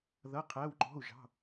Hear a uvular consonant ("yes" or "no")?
yes